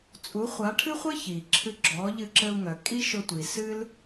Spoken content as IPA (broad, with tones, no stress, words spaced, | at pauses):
t͡sʼu˩˥χʷa˩˥ʈʰɨ˥χʷɘ˥ çi˩ ǁʰɨ˧ ɡ͡ǁɔ˩˥ʎɨ˧ǁɘ˧u̯ ŋœ˩kʼi˥ʃʊ˧tʷi˩ sɨ˥l